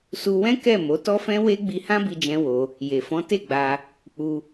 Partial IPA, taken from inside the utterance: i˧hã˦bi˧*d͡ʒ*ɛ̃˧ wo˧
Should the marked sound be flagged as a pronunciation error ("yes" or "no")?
no